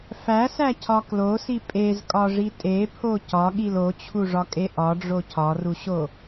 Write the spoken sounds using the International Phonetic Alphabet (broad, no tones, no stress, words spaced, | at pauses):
fæsæcʰɒ klosi pʼezkʼɒʐi tʼepʰo cɒɠil ot͡ɕʰuʐɒkʼe ʔɒɖ͡ʐo cʰɒruɕo